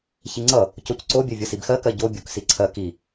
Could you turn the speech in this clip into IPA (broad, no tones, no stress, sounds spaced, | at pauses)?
ç i ŋ͡ǀ ʌ | c o c ǀ o bʲ ɜ vʲ ʌ s i b x ɜ k ɜ ɟ o bʲ o k s i ǀʰ ɜ k i